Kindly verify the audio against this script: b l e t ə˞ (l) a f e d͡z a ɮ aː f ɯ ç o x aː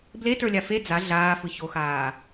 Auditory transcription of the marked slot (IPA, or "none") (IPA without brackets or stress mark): lʲ